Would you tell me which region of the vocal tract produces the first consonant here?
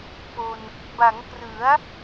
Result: lips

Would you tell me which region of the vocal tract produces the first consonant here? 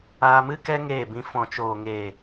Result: lips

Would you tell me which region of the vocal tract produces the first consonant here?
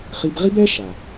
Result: uvula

